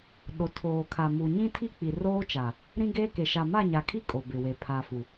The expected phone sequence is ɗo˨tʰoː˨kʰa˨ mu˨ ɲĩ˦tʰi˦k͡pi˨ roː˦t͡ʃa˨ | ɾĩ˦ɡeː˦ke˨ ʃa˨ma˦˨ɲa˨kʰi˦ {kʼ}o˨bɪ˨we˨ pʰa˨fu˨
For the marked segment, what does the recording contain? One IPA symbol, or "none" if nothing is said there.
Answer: kʼ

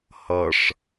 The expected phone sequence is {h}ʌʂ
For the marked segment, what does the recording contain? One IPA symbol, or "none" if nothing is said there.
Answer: h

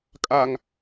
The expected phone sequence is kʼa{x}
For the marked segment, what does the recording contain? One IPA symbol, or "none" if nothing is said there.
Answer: ŋ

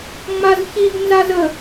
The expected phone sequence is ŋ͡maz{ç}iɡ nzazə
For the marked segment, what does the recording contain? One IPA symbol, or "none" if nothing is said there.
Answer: ç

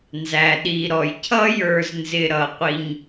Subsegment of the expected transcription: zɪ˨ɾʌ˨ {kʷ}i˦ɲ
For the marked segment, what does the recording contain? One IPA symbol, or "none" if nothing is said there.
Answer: qʷ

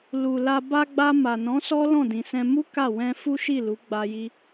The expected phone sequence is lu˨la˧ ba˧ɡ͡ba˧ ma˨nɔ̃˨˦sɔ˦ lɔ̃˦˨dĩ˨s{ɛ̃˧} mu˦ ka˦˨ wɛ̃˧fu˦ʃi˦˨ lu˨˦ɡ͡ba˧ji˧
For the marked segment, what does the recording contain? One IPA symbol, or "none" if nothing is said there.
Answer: ɛ̃˧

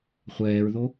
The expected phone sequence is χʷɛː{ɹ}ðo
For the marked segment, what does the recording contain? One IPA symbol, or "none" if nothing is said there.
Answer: ɹ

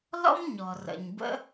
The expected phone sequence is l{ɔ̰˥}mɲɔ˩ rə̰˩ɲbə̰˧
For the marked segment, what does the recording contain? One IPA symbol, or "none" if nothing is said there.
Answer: ɔ̰˥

